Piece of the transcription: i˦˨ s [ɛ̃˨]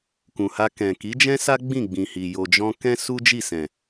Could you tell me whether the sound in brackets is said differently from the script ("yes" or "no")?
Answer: no